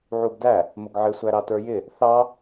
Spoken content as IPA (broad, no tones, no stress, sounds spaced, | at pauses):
ʕ u ɡ d æ | m ʊ ɡ ʕ ɪ sʷ æ ɾ ɑ t ə˞ j ɪ | θ ɑ